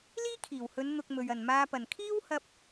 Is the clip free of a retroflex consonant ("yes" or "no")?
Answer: yes